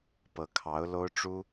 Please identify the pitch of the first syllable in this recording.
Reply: rising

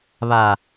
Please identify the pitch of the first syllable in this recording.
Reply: low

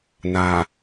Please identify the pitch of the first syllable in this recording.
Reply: low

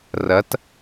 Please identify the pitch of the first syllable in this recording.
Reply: rising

